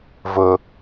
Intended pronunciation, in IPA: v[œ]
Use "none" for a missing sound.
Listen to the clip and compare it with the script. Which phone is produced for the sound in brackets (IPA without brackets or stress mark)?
ɵ